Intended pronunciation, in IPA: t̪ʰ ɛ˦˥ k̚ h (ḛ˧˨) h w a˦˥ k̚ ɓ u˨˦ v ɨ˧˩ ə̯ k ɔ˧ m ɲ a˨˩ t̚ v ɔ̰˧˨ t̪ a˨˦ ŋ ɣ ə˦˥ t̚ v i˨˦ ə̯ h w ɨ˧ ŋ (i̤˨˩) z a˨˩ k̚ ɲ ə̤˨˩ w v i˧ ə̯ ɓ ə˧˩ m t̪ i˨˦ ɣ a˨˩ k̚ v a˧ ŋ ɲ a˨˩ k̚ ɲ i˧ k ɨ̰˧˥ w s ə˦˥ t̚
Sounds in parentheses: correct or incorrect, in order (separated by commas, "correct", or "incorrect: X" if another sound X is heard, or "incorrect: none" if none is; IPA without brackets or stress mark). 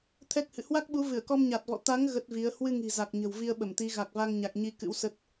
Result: incorrect: ɨ̰˧˨, correct